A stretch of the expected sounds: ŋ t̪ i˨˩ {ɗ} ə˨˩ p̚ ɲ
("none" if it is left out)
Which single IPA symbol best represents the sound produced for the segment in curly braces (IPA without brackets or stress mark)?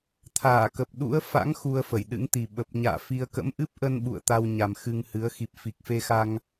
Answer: ɓ